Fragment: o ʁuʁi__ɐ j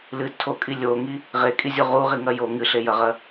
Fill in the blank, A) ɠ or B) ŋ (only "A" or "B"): B